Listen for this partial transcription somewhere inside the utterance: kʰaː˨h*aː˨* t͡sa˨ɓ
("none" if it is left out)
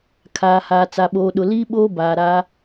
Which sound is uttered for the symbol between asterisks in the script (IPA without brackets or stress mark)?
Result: aː˨